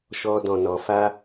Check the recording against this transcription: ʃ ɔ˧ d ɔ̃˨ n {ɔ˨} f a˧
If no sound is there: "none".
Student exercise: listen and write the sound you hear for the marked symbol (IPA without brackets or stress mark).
ɔ˨